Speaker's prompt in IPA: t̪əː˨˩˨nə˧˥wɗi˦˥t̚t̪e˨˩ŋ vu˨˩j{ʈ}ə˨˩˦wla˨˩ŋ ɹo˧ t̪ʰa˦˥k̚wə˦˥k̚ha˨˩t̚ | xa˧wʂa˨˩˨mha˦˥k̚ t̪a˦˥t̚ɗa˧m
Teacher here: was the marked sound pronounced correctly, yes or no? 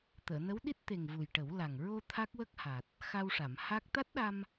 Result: yes